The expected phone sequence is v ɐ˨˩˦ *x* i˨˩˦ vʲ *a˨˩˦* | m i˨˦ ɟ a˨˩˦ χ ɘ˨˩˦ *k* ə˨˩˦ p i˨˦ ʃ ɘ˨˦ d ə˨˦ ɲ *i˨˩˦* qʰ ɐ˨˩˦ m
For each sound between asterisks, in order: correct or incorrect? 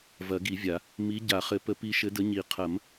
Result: incorrect, correct, incorrect, correct

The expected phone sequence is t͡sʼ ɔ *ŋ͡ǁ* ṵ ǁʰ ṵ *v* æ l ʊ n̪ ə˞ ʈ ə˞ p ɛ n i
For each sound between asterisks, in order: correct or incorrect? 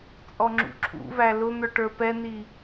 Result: correct, correct

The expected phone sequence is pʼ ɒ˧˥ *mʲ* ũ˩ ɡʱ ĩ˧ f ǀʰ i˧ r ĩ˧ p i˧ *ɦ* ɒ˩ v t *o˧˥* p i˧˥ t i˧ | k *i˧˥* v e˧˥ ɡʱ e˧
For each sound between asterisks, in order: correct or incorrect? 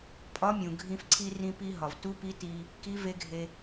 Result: correct, correct, incorrect, correct

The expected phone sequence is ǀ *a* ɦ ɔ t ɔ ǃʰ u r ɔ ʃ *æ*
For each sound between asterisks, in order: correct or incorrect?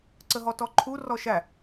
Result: incorrect, correct

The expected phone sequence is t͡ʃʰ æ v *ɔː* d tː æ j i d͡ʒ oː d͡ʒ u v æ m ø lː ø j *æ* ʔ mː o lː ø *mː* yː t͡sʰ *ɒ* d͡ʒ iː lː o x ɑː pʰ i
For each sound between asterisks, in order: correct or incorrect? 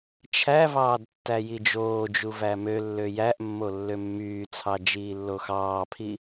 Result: incorrect, correct, correct, incorrect

